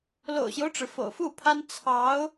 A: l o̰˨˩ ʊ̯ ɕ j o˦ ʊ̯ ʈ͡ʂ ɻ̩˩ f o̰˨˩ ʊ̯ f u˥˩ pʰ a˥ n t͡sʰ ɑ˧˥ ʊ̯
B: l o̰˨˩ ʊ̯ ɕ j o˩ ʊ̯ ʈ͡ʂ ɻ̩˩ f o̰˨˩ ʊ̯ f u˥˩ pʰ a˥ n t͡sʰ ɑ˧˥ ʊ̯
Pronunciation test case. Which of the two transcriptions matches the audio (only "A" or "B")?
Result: A